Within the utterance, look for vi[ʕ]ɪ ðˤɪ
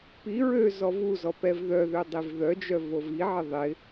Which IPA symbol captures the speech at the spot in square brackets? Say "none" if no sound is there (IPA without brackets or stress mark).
ʕ